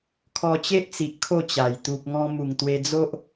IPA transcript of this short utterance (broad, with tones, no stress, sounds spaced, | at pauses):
kʰ ɔ˧ t͡ɕ e˦ ʔ t͡s i˨ ʔ kʰ o˥˧ t͡ɕ a˨˩ j t̪ u˨ p̚ ŋ ɔ̃˧ m u˨˩ ŋ t̪ w e˧ d͡z o˦ ʔ